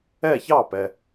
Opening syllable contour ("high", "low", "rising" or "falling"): falling